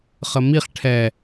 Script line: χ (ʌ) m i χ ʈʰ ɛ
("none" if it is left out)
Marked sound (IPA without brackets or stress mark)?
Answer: ə